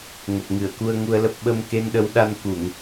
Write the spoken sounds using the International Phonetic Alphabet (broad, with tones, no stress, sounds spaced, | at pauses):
ŋ ə˨˩ p̚ ŋ ɨ˧˩ ə̯ k u˧ ə̯ ŋ u˧ ə̯ l ə˦˥ p̚ ɓ ə˧ m k e˧ n ɗ ə˨˦ w ɗ a˧ n k u˧˩˨ ŋ